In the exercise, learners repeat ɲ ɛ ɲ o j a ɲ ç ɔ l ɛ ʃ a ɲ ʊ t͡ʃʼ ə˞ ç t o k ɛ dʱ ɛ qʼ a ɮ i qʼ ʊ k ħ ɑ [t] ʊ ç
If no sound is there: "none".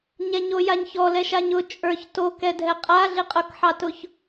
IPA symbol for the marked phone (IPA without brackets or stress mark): t